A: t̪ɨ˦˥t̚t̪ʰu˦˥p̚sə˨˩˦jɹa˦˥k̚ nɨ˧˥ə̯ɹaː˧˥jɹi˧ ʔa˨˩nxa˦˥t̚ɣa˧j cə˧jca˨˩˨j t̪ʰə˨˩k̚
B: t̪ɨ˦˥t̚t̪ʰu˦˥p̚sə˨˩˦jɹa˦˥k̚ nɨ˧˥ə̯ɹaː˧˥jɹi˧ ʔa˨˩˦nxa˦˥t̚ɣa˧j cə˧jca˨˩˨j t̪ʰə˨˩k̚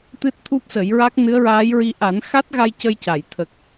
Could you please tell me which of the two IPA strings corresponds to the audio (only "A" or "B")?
B